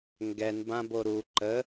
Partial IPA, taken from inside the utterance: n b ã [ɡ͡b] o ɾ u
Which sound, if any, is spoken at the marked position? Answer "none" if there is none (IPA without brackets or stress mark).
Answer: b